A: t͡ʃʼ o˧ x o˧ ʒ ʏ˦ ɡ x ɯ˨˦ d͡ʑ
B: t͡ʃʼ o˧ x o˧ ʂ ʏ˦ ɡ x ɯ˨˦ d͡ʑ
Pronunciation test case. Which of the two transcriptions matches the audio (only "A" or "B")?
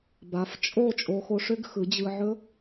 B